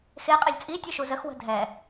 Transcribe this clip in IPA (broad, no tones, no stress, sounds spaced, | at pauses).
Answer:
x e qʼ ɛ lʲ t͡sʼ i tʲ u ʃ u z ə x w ə̤ dʱ ɛ